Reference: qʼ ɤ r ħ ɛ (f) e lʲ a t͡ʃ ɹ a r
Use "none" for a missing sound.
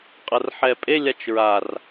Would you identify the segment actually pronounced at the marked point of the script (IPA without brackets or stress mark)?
pʼ